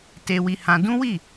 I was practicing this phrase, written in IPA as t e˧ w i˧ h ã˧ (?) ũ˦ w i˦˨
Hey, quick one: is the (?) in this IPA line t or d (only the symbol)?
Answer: d